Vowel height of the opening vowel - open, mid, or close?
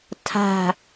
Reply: open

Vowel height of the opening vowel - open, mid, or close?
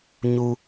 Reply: close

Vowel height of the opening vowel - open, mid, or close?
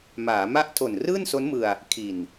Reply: open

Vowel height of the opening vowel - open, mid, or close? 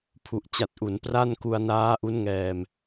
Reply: close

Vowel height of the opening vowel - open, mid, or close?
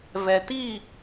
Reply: mid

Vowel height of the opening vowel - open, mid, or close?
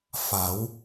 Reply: open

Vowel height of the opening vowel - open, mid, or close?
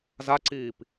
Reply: open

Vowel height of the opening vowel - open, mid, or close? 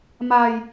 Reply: open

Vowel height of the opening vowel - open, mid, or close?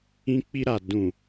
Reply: close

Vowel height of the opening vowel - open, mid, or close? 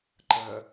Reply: mid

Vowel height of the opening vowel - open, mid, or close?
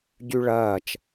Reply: close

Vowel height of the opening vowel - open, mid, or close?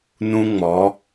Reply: close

